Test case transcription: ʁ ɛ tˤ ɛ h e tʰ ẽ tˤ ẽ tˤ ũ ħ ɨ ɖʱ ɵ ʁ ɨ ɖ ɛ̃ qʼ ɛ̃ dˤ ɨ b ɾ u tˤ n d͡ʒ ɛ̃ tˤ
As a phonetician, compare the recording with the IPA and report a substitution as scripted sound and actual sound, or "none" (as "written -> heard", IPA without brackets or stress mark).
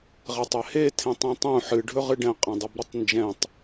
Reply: none